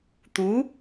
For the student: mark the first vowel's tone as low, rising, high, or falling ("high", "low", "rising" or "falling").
rising